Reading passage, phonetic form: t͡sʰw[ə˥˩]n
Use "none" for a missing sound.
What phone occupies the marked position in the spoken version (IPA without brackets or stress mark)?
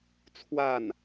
a˥˩